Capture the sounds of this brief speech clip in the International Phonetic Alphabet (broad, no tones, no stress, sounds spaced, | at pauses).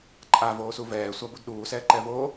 ǃʼ a v oː s u v ɛː sʷ a b u d ɗ uː s ɛː ǃ ɛ v oː